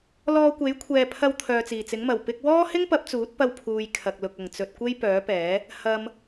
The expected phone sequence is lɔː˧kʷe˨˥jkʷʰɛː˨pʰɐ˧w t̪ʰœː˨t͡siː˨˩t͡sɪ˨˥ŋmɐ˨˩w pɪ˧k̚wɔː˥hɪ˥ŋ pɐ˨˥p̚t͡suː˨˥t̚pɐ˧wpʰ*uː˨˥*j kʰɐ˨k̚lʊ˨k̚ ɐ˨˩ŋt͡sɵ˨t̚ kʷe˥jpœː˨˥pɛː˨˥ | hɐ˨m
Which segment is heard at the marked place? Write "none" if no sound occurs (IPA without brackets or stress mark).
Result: uː˨